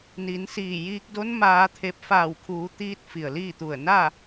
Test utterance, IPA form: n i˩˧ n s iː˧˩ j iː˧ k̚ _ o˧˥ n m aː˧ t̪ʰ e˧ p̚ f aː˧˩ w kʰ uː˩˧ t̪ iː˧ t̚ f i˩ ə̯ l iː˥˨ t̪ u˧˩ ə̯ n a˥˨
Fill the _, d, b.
d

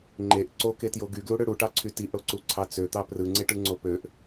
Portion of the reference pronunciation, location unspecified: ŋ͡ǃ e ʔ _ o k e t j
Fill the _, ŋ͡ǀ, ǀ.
ǀ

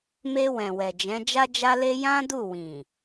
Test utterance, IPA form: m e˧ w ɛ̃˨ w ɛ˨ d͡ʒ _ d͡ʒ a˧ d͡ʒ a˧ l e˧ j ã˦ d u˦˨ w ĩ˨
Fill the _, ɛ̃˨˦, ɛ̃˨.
ɛ̃˨˦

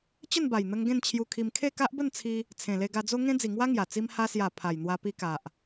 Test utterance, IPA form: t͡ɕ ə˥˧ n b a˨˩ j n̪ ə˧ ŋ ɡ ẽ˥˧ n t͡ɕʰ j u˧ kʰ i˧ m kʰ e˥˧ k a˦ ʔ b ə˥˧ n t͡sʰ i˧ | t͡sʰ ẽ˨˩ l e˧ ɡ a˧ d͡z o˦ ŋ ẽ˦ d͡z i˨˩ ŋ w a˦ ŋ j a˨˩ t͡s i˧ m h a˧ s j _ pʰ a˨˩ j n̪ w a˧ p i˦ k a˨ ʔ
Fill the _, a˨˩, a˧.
a˨˩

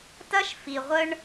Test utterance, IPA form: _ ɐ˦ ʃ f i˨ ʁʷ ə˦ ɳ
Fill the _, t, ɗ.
t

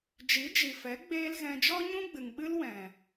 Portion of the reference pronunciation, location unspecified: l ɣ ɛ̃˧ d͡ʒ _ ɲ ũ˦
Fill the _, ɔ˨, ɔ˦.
ɔ˦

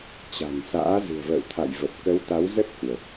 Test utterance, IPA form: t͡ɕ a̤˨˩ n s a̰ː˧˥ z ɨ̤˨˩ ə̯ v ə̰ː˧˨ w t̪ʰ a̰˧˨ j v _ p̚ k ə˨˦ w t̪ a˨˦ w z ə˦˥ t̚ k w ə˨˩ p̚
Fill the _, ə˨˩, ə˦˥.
ə˨˩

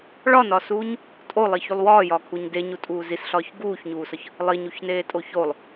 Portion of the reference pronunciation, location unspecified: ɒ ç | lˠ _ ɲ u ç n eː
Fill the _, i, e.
i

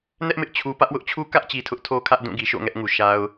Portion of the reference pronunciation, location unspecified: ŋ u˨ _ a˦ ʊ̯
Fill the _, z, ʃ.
ʃ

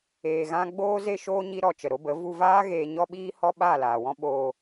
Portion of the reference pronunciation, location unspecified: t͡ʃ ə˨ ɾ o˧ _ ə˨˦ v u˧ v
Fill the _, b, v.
b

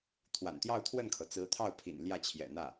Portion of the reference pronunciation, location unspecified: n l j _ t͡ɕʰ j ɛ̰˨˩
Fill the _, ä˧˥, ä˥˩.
ä˥˩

